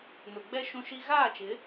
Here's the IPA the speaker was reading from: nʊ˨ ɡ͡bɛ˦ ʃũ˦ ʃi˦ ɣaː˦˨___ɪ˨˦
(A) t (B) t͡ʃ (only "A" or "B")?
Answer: B